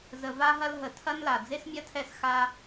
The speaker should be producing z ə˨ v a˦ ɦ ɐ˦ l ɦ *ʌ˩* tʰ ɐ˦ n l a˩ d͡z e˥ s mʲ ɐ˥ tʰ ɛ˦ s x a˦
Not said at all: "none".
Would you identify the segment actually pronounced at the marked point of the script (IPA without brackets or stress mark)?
ə˩